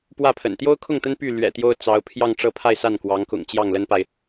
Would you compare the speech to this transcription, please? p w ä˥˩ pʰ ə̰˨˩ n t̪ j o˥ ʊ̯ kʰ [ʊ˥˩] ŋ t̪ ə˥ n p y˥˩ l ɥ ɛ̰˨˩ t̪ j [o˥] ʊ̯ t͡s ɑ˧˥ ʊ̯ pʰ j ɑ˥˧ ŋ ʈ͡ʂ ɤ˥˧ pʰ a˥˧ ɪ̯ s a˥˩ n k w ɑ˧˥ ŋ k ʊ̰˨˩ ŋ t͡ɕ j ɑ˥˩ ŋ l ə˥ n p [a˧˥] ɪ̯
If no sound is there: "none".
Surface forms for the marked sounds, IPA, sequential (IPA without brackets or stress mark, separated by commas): ʊ˥˩, o˥, a˨